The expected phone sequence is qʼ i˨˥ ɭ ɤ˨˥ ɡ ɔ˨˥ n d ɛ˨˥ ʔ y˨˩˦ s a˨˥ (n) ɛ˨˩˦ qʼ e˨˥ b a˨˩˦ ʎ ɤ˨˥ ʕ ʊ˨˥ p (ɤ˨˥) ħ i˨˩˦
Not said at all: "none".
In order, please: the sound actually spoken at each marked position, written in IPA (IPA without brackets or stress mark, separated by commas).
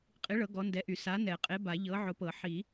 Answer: n, ɤ˨˩˦